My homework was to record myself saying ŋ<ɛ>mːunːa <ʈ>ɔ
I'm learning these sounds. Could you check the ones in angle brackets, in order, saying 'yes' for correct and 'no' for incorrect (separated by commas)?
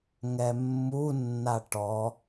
yes, yes